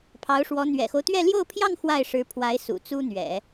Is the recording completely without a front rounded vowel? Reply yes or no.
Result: yes